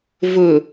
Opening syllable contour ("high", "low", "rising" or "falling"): low